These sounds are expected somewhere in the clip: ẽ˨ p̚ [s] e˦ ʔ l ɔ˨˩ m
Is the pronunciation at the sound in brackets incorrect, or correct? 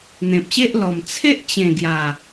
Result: incorrect